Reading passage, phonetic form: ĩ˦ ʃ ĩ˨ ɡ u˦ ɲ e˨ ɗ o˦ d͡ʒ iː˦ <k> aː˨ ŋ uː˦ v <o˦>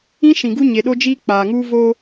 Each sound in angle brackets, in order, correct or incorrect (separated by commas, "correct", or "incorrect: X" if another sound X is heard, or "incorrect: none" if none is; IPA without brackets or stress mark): incorrect: k͡p, correct